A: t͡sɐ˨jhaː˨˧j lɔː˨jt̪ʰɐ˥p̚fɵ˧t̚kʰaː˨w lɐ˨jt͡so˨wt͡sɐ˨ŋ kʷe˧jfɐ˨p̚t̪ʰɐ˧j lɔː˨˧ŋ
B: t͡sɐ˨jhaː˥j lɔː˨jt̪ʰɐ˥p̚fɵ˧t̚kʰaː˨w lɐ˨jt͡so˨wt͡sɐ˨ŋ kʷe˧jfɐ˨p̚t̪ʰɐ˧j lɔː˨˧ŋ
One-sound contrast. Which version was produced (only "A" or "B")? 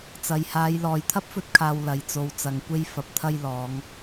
A